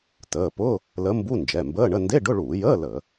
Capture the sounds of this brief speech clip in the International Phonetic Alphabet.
t əː˩˧˩ p ʊ˧˥˧ | l ə˧˥ m b u˧˥˧ n d͡ʒ ɛ˩˧˩ m b əː˧˥˧ ɳ ə˧˥˧ n d e˧˥˧ ɖ ʊ˧˥˧ ɭ uː˧˩˧ j əː˧˥˧ l ə˧˩˧

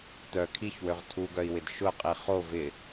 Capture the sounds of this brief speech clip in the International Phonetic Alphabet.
t̪ œ kʰ i ç w ø ʁ tʰ u ɡ œ i̯ w ɪ d ʃ ʊ qʼ i χ o v ɪ

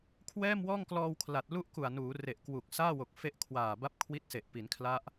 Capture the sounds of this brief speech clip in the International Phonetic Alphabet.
kʰ w ɛː˥˩ m w ɔː˥˩ ŋ k l ɔː˧ w kʰ l a˨˩ t̚ l u˥˩ ʔ k u˨˩ a̯ n uː˩˦ r e˨˩ ʔ k w u˨˩ k̚ s aː˥˩ w o˨˩ k̚ f e˦˥ ʔ kʰ w aː˨˩ b a˦˥ p̚ kʰ w i˦˥ t̚ s e˨˩ ʔ p i˩˦ n kʰ l a˦˥ ʔ

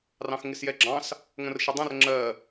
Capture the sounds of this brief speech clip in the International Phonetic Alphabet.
r ɑ̃ x ŋ ɪ s j ɛ ɡ͡ǁ ɑ̃ s | ŋ ə̃ r ʃ ə dˤ ə̃ r ŋ͡ǁ ɜ

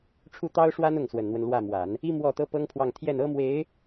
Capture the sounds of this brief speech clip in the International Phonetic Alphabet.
ʈ͡ʂʰ u˥˩ t̪ ɑ˥ ʊ̯ ʂ w a˥ n ʊ˥˩ ŋ s w ə˨˩ n n̪ w ə˦ n l w ä˥˩ m w a˨˩˦ n | i˥ m w ɔ˥˩ t̪ ɤ˥ p ɤ˥ ŋ pʰ w ɑ˥˧ ŋ t̪ʰ j ɛ˥˩ n ɤ˥ m w e˧˥ ɪ̯

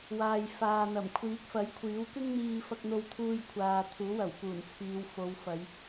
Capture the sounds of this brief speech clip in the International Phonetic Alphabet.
w aː˨ j f aː˨ n̪ ɐ˨˩ m kʷʰ iː˨˥ k̚ f ɐ˨˥ j kʷʰ iː˨˥ w k ɪ˥ ŋ n̪ iː˧ f ɐ˧ k̚ n̪ o˧ w t̪ʰ uː˧ j kʷʰ aː˨ t̪ʰ uː˨˥ w ɐ˨˩ w k uː˨˩ n t͡sʰ iː˨˧ w f o˨˧ w f ɐ˨˧ j

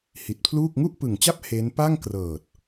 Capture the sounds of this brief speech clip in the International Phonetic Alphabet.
h i˨˩ t̚ pʰ l uː˥˩ k̚ ŋ u˥˩ ʔ p ɯ˨˩ ŋ t͡ɕ a˥˩ p̚ h e˦˥ n p a˥˩ ŋ k r ɤː˨˩ t̚

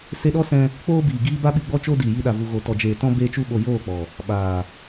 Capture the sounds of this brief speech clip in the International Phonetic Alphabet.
s e˧ ɗ ɔ˦ s ɛ̃˧ | k͡p oː˦ b iː˨ ɡ iː˦ b a˦ ɓ i˧ ɡ͡b ɔ˧ t͡ʃ o˧ d iː˨ j i˧ ɗ a˨ v u˨ ɣ o˨ t ɔ˨ d͡ʒ eː˨ t ɔ̃˧ b eː˧ t͡ʃ u˧ ɓ o˨ j oː˦˨ k͡p ɔ˨ | ɓ aː˨

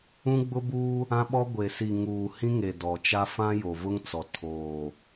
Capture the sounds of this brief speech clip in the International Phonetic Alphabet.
ũ˦ ɡ͡b ʊ˦ b uː˦ | ã˦ ɓ ɔ˦ ɡʷ e˨ s i˨ ŋ uː˨ h ĩ˦ ŋ e˨ d ɔ˨ t͡ʃ a˦ f ã˦ j o˨ v ʊ˦ ŋ t͡s ɔ˨ tʰ oː˨

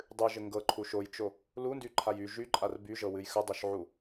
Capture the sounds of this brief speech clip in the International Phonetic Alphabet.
dˤ ɨ ʒ ɘ ŋ ɡ ɤ ǃʰ u ʃ o j t͡ʃ o | l u n d y ǃʰ a j y ʒ y ǃʼ a r b y ʒ ɤ w ɨ j x ə dˤ o ʃ ʕ u

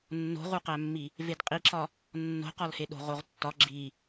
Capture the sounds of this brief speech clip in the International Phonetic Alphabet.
nː o̤ ʁ u q æ mː i | v e d qʼ i ǁ ɒ | nː o̤ q ɒ l h e ɗ o̤ ʁ o ʁ tː ɒ ɡ͡ǁ i

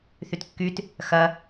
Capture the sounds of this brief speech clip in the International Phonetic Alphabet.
θ y t kː y t | x ɐ

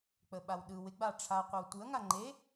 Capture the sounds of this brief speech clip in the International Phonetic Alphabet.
k͡p ə ɓ a w ɗ ɯ w ɪ ɡ͡b a ʈ͡ʂʰ a qʷ ə w tʷ ɯ ɐ̯ ŋ a ŋ͡ǃ e

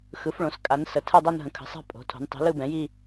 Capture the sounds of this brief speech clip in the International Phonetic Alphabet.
x ɯ˩˥ f ɭ õ˩˥ s kʼ a˩˥ n s ə˩˥ tʰ ɯ˥˧ dˤ o˥˧ n ɦ ə̃˩˥ kʰ ə̤˩˥ sˤ a̤˥˧ pʼ o̤˩˥ tʰ o̤˩˥ n tˤ i̤˩˥ l ɯ˥˧ b ɛ̃˩˥ j i˥˧

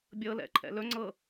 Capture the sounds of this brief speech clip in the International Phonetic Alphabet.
bʲ ɤ l ɛ̰ ǃʰ ɛ̰ l ɵ ŋ͡ǀ ɤ

